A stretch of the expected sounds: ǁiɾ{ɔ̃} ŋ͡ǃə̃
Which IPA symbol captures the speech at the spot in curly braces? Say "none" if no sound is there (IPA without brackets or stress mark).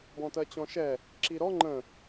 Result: ɔ